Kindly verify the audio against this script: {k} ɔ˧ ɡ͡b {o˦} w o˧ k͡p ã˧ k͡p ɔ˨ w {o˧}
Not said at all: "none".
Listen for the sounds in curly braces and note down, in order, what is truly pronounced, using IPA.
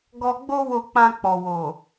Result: ɡ, o˦, o˨

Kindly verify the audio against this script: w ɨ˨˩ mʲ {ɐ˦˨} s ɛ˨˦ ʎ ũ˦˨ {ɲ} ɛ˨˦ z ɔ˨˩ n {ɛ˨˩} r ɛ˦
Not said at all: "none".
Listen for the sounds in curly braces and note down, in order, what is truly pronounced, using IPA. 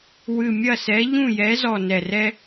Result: ɐ˦˨, j, ɛ˨˩

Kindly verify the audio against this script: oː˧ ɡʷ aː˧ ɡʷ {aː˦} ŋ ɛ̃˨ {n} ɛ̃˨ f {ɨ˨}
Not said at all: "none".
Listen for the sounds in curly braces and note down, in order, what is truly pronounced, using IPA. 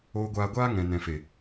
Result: aː˦, n, e˨

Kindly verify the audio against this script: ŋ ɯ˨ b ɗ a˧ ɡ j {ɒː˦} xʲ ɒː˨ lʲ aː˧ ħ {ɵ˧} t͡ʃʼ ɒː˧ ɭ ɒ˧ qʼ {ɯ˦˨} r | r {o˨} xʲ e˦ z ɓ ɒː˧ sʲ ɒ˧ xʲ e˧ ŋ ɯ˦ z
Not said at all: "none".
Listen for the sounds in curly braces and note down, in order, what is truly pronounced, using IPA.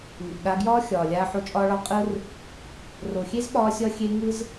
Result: ɒː˦, o˧, ɯ˦, o˨

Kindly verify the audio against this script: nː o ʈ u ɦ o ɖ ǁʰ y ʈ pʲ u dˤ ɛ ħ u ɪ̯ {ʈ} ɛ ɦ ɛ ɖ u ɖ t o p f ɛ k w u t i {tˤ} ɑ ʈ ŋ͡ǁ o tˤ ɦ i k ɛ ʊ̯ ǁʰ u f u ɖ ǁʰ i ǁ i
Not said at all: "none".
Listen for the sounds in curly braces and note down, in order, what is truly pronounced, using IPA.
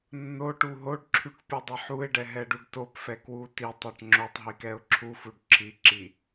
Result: ɖ, tˤ

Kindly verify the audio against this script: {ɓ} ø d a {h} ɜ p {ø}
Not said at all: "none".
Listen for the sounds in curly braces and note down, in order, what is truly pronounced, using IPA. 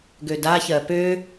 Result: ɡ, ç, ø

